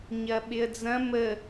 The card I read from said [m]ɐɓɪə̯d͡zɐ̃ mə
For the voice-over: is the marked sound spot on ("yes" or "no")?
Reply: no